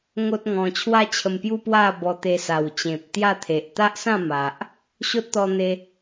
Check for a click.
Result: absent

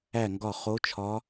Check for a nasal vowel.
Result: absent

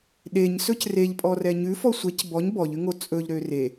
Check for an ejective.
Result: present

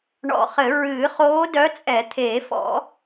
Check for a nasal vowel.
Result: absent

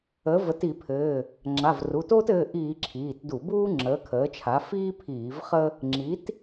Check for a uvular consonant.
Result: present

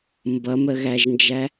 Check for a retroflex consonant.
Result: absent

